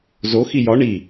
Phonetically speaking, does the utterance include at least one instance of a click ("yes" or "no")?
no